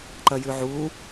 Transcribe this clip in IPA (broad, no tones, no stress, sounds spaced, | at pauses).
ǃ ɐ j ʉ ʕ u